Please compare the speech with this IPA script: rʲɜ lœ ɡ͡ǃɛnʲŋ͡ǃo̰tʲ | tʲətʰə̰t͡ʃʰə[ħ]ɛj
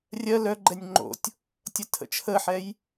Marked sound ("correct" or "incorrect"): correct